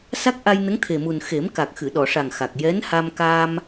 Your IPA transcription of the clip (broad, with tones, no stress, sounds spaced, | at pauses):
s a˦˥ k̚ ʔ a˧ j n ə˧˥ ŋ t̪ʰ e˨˩ m u˨˩ n x e˨˩˦ m k a˨˩ k̚ x ɨ˨˩˨ ɗ ɔ˨˩˨ ʂ a˨˩ ŋ x a˨˩ k̚ j ɛ˧˥ n h a˧ m k aː˧ m